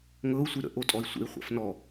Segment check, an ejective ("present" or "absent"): present